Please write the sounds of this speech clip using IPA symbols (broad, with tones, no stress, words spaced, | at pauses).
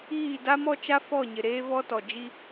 iː˦˨da˦mɔ˦t͡ʃa˦ fɔ˦˨ɲɪ˨ ɾeː˦vɔ˦tɔ˨ d͡ʒi˦